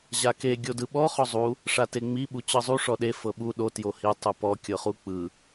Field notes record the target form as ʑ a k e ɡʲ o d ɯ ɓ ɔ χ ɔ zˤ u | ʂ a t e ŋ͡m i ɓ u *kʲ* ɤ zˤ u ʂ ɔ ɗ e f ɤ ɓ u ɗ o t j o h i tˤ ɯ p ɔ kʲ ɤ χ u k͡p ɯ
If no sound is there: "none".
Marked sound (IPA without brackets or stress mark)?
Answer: t͡ɕ